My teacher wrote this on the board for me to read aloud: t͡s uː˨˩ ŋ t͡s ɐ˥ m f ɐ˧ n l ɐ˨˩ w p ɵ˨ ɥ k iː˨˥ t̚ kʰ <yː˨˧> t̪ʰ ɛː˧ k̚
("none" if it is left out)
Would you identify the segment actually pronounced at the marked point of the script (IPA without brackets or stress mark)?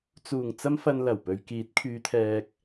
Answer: yː˨˧